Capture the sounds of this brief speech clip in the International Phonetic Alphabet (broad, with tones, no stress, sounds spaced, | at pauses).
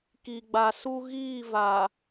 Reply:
k i˨ ɡ͡b a˨ s u˦ ɣ iː˦˨ v a˨